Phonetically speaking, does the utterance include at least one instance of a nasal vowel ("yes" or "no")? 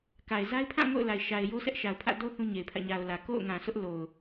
yes